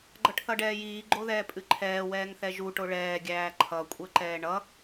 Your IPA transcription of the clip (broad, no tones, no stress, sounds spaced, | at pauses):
ɡ͡ǃ ʌ ʈ θ ʌ ɖ ɛː j iː ɡ͡ǃ o ð ɛː pʼ ɨ ǃʰ ɛː w ɛː ŋ θ ɛ ʒ u ʈ o ɭ ɛː ɡʲ æː ǃʰ ʌ kʷʼ ɛ ǃ ɛː ɳ ʌ